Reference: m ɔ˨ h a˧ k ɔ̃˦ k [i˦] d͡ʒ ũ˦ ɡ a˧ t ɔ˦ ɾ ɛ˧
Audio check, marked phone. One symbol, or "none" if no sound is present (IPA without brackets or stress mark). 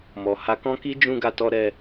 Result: i˦